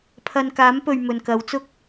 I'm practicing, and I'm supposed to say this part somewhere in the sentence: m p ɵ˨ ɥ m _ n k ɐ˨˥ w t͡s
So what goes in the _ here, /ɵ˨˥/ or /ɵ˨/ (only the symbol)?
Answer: ɵ˨